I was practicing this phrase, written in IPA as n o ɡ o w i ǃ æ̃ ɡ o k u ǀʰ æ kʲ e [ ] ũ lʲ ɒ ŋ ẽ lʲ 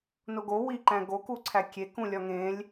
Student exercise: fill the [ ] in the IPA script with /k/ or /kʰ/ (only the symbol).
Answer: k